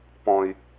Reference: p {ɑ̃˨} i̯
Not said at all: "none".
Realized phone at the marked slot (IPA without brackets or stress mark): ɔ̃˨